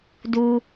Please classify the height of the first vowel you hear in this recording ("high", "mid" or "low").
high